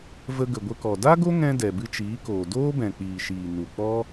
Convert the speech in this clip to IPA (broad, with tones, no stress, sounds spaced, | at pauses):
v ə˧ ɡ ə˨ ɡʷ ə˧ k ɔ˨ d a˦ ɡ o˦ ŋ ɛ̃˧ d ɛ˨ b ɨ˧ t͡ʃ iː˨˦ k oː˨ d oː˦ b ɛ̃˨ k͡p iː˨ ʃ iː˨ n u˨ k͡p ɔ˦